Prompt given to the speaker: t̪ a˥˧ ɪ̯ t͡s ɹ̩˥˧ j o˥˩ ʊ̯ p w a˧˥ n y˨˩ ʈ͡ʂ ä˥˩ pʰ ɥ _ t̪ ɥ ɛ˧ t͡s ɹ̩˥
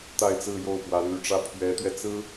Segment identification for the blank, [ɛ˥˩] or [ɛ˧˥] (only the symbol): ɛ˧˥